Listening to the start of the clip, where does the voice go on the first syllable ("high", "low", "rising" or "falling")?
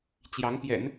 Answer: rising